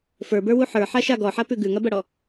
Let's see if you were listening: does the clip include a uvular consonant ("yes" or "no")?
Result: no